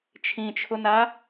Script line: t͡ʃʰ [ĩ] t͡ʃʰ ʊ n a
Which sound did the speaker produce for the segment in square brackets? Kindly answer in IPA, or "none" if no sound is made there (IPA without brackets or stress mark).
ĩ